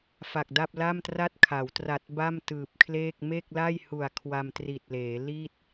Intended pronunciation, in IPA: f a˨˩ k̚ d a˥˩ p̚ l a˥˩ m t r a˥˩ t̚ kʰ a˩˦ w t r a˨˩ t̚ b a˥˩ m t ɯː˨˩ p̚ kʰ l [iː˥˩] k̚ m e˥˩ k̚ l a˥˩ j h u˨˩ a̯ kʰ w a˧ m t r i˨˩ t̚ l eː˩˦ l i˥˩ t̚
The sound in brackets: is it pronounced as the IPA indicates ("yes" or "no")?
no